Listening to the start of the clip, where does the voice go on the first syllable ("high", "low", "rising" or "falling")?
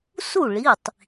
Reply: falling